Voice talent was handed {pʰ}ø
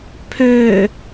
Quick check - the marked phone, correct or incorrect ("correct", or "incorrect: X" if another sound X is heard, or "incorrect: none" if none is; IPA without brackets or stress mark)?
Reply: correct